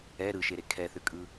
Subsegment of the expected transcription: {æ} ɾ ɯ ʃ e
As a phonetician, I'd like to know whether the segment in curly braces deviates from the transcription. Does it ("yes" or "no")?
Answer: yes